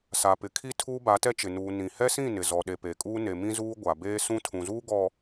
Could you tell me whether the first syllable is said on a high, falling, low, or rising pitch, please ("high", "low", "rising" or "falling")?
low